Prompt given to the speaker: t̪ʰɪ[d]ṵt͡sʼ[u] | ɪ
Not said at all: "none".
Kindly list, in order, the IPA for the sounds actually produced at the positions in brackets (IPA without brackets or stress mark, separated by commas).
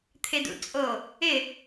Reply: d, o